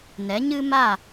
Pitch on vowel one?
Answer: rising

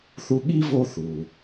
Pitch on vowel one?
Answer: high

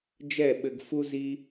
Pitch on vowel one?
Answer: falling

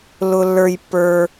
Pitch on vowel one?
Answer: high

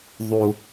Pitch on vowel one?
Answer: low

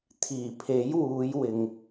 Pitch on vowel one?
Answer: low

